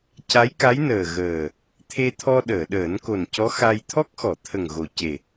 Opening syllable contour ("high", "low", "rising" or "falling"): rising